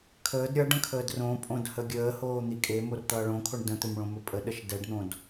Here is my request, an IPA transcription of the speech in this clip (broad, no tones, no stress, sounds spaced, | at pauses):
kʰ əː d ɾʲ ʌ ɖ ə̃ kʰ əː d r õ pʼ õ d h ə ɡʲ əː h oː n̪ i kʼ e m o r t̪ ʌː ɭ õ kʰ o ɳ d ə̃ t̪ ɵ m ɭ õ m ɵ pʼ ə ɗ ə ʃ d ɛ ɖ n̪ õ d